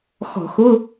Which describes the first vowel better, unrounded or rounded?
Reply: rounded